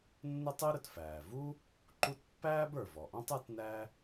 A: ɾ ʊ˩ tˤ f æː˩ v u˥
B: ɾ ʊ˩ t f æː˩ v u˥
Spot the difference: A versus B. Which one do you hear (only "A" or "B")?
B